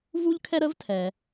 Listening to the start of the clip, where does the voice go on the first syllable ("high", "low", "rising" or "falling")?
high